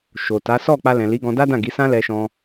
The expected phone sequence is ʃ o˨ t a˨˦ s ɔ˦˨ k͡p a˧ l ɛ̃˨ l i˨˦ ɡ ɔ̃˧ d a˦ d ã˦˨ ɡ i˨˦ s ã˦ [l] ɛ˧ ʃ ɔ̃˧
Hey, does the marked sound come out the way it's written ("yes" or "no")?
yes